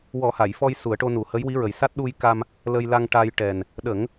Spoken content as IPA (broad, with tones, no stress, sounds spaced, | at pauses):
w ɔ˨˩˦ h a˨˩˨ j f ɔ˧ j s u˨˩˦ ə̯ ʈ o˧ n u˨˩˦ h ə˧˥ j w i˧˥ ɹ ə˨˩˦ j s a˦˥ t̚ ɗ u˧ j k a˧ m | l ə˧ j l a˧ ŋ ʈ a˧ j ʈ ɛ˨˩ n | ɗ ə˨˩˦ ŋ